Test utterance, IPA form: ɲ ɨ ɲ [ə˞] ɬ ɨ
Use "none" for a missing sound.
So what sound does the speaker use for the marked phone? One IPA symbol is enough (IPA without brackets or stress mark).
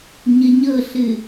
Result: ɤ